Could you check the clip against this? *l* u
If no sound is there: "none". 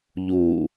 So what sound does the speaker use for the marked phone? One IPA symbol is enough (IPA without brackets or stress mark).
ʎ